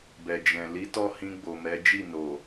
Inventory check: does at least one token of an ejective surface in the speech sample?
no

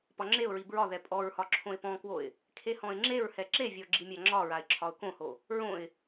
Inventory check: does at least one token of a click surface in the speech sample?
yes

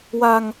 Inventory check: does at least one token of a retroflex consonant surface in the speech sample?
no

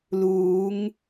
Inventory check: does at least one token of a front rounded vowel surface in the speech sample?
no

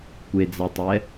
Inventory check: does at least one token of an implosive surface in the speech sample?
no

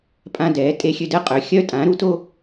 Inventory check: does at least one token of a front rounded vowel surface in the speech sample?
yes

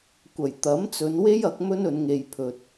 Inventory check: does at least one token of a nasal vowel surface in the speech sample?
no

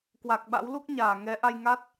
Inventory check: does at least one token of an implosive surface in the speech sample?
yes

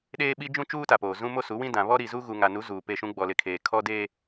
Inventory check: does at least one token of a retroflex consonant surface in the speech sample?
no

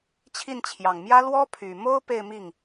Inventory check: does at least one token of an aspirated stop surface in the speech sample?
yes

